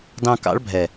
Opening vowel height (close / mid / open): open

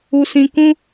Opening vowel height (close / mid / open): close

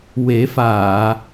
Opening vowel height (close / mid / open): mid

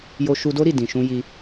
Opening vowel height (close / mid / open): mid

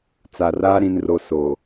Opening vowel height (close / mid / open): open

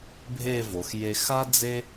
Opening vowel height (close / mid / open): mid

